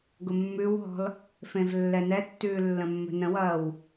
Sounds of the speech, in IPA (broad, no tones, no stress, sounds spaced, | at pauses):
ɡ ʊ mː ʉ w ɦ ɔ̤ l | f ẽ v lː ɛ n ɛ tː ʉː lː ə̃ mː ə̤ n ə̃ w ɐː w